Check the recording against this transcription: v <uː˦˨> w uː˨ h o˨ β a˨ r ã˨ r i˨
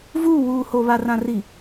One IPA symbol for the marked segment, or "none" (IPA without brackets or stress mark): uː˦˨